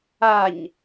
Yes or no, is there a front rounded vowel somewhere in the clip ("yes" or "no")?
no